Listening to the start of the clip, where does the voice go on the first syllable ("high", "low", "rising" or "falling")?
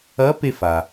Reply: rising